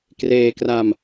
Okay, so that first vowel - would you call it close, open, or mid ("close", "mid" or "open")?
mid